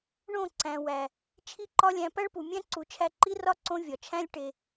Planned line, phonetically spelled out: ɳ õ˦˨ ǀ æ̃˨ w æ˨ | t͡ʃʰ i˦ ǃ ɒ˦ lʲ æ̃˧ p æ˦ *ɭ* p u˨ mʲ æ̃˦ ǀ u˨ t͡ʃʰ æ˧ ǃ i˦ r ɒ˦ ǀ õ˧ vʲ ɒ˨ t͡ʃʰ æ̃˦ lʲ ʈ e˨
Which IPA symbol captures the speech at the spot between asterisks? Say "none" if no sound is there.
ɭ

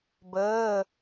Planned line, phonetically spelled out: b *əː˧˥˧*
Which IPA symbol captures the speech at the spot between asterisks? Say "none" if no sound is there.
əː˧˥˧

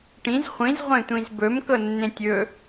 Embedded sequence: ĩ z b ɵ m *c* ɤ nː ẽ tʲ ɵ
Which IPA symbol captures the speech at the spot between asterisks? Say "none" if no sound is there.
k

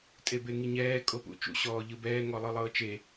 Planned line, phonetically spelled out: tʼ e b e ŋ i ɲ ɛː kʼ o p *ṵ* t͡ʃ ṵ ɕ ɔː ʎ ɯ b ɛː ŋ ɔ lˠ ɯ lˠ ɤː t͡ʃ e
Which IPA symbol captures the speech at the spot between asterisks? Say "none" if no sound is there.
ṵ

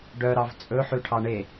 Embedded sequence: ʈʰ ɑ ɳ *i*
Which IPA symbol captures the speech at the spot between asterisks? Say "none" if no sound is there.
e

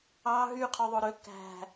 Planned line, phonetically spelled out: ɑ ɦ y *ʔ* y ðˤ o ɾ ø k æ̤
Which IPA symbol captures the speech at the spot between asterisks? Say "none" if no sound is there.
qʰ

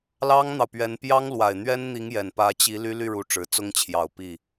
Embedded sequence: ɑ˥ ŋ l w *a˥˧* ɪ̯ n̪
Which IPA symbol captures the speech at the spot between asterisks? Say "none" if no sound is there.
a˨˩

